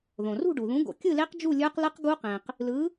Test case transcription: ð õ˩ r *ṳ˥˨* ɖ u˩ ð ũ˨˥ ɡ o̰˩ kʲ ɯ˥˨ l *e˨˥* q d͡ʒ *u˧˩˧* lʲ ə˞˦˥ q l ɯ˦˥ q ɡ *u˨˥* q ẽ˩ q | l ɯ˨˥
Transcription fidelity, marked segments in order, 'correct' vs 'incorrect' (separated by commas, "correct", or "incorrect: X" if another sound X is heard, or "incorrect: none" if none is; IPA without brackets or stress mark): correct, incorrect: e˦˥, incorrect: u˥˨, incorrect: u˦˥